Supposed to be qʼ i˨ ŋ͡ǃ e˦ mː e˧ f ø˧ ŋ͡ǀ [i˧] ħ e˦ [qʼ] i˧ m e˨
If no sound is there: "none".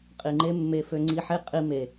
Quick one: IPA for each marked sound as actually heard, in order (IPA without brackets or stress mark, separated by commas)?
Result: i˧, qʼ